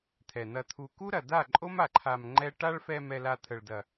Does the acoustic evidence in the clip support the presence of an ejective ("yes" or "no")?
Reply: yes